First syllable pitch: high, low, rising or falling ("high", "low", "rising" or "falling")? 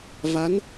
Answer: rising